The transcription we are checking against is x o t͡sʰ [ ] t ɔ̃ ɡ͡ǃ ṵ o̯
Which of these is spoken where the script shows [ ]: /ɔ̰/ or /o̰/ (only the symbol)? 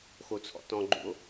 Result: ɔ̰